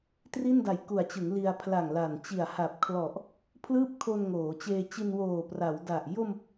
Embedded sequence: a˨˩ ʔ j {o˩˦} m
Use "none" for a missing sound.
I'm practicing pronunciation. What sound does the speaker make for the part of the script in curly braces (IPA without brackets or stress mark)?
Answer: o˧